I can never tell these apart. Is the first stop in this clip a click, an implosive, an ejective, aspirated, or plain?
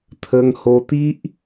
aspirated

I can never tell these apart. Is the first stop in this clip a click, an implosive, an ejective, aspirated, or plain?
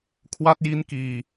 aspirated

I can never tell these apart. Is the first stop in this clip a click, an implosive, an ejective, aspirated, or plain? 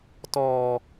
plain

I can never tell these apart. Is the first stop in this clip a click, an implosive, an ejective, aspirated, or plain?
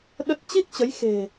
implosive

